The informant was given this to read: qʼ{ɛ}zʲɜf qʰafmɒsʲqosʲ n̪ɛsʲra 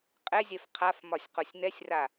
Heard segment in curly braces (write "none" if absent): ɛ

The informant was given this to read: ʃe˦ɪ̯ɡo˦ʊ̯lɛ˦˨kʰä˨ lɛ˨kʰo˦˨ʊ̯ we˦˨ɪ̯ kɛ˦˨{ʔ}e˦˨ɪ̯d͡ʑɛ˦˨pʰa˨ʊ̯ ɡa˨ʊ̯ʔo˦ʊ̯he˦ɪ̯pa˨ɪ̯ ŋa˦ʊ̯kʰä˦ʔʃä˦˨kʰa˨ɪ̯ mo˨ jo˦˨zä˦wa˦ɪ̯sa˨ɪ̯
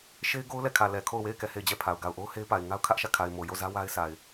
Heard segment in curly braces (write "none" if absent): h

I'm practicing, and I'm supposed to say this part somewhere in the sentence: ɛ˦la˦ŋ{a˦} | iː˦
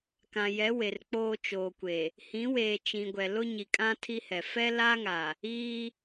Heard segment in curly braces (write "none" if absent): a˨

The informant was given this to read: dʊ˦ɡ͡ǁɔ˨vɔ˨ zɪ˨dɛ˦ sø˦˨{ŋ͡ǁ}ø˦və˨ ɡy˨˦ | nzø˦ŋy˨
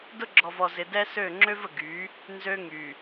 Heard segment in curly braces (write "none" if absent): ŋ͡ǁ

